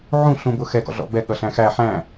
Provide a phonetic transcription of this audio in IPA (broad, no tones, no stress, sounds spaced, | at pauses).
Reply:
ʕ ũ ɬ ũ b ʊ x ɛ ɡ ɔ̰ ɮ ɔ̰ b ɛ ɠ ʌ ɬ æ̃ x æ ħ æ̃